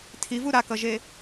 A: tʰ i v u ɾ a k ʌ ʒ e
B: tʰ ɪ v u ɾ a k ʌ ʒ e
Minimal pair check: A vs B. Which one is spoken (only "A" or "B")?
A